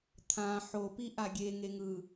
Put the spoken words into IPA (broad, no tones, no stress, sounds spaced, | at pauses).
t̪ʰ ã ħ o p i ʔ a ɡʲ e ŋ e ŋ ɯ